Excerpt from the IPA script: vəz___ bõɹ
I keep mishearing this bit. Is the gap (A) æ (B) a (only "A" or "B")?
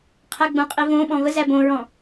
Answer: A